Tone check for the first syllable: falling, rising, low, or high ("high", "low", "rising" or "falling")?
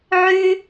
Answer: high